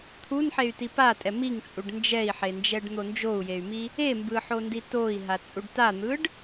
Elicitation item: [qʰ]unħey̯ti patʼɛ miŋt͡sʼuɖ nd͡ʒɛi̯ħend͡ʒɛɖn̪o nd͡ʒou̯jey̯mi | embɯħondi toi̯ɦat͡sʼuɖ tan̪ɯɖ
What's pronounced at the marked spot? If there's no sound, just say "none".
t̪ʰ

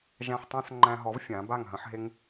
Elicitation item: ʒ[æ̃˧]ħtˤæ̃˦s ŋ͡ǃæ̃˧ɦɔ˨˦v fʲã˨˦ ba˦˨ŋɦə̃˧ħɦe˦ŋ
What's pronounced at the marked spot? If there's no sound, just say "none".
æ̃˧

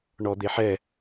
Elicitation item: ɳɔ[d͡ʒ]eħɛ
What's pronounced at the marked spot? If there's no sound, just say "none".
d̪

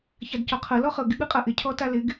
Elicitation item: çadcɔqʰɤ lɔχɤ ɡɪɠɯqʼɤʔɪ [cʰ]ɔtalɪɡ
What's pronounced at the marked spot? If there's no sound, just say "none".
cʰ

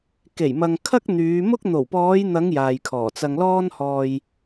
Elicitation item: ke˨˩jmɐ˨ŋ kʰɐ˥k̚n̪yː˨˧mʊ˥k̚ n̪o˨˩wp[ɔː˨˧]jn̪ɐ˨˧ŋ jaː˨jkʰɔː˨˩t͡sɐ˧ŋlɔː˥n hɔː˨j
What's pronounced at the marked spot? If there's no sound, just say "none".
ɔː˨˧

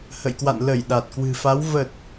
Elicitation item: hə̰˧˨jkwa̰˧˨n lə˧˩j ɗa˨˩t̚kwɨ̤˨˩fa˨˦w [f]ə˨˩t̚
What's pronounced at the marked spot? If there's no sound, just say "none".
v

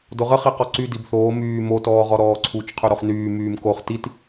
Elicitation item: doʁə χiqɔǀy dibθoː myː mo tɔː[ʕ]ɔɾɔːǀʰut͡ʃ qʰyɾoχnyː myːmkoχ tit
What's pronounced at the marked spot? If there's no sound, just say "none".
ʁ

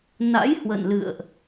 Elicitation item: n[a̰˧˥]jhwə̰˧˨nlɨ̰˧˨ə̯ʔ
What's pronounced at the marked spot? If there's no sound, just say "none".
a̰˧˥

